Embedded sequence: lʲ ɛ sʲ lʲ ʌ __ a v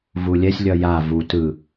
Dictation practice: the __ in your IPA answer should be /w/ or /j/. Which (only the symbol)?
j